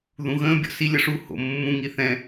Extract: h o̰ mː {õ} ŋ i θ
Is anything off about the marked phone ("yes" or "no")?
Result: yes